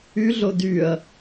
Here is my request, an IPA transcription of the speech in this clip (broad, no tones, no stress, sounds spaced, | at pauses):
y ɮ o d y ɐ̯